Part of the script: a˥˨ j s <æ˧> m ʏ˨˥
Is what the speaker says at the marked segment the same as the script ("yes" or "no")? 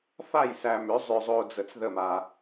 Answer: yes